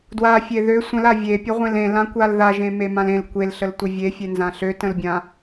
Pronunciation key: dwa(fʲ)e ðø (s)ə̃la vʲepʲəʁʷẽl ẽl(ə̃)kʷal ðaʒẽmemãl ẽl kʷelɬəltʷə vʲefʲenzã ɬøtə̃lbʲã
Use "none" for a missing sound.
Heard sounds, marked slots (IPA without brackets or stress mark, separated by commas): fʲ, sʷ, ã